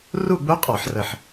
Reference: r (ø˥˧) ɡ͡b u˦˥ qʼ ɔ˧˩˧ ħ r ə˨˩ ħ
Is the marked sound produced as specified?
no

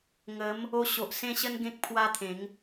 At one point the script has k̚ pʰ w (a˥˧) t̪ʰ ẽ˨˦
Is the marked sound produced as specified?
no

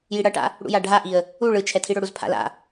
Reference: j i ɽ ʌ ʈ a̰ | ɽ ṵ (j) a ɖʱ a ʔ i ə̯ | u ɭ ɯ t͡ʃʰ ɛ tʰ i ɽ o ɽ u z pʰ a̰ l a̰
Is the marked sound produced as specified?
yes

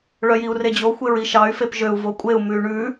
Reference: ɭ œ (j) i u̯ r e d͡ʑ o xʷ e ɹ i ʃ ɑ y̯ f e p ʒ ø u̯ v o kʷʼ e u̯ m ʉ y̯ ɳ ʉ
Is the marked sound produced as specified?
yes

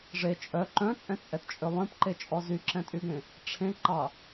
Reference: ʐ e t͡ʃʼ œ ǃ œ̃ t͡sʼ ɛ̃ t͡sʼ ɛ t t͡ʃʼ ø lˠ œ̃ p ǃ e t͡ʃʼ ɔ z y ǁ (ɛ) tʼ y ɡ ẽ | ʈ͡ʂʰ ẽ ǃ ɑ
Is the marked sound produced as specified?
no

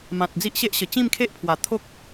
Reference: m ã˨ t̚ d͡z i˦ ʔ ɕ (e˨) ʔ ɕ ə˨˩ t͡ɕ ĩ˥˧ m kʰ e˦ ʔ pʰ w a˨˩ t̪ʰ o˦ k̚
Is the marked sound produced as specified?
no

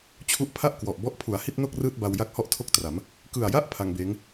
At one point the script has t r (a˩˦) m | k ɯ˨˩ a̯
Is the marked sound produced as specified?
yes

